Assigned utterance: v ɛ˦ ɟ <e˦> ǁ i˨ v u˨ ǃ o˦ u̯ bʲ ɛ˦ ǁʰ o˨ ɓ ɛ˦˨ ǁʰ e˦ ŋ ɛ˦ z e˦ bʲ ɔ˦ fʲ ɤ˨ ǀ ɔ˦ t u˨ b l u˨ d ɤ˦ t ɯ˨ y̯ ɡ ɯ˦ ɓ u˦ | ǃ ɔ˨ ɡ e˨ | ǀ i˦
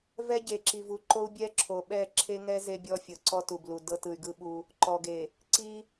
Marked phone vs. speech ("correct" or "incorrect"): incorrect